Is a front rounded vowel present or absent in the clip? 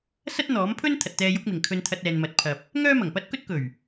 present